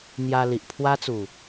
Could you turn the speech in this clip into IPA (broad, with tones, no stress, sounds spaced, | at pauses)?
n̪ j a˧ l i˨ ʔ pʰ w a˦ t͡s u˨˩